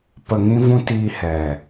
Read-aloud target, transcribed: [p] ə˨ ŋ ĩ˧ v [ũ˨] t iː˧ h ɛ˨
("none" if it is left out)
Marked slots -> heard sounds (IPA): p, ũ˧

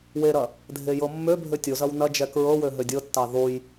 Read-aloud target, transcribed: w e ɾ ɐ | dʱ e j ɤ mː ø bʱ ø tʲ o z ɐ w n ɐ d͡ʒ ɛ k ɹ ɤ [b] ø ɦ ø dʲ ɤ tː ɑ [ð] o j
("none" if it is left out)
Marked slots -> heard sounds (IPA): w, ð

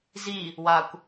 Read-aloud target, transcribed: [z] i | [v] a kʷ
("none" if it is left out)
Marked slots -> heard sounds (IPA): z, w

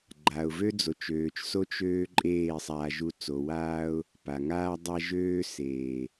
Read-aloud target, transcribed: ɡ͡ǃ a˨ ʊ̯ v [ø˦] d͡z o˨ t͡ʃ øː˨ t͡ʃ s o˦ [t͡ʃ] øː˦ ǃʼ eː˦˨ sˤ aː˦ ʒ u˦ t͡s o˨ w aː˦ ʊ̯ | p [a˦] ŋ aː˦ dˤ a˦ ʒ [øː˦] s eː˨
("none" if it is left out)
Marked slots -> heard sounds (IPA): ø˦, t͡ʃ, a˨, øː˦

